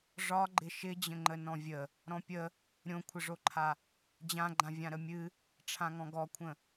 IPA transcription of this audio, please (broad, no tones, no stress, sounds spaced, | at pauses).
ʐ ɒ ɡ͡ǃ ɪ ʃ ɪ d͡ʑ ə̃ ŋ͡ǃ ə n ɔ̃ vʲ ə | ɾ ɔ̃ pʲ ə | ɾʲ õ kʷʰ ɪ ʐ o ǃʰ a | d͡ʑ ã ɡ͡ǃ ã vʲ ã ɾ ə mʲ ɨ | ʈ͡ʂʰ ã ŋ ɔ̃ ɡ ɔ kʷʰ ə̃